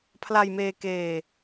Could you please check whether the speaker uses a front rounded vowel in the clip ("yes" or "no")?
no